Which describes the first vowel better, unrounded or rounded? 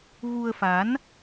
rounded